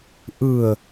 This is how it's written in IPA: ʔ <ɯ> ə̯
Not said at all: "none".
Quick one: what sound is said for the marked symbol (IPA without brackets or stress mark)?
ɯ